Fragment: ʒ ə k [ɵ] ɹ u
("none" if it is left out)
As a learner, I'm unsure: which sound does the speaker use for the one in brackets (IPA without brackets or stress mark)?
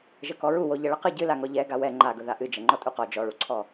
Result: ɔ